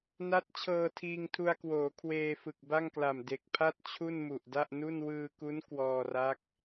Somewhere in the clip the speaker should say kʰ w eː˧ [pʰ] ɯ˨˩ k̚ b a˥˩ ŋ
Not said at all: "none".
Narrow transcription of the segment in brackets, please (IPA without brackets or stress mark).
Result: f